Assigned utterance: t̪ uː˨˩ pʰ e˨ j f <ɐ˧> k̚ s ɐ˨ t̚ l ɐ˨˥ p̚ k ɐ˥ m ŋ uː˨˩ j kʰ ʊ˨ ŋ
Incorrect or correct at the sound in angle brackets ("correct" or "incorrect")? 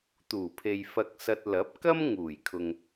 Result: incorrect